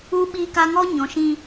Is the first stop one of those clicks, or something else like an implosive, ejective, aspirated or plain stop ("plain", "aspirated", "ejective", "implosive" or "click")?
implosive